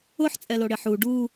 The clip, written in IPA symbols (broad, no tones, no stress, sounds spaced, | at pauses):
ʊ ħ t͡sʼ ɛ l o ɽ ɪ ħ u ɖ u